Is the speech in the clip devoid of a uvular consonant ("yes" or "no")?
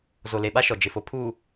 yes